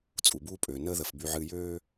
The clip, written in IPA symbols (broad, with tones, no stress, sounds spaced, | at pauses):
t͡sʼ u˨ b uː˦ pʼ øː˨ n əː˦ ð ə˨ f b y˨ ʕ ɨː˨ j øː˦